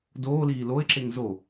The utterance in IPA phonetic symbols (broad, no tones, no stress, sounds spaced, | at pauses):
d oː l iː l o ɪ̯ ǁ e ŋ z o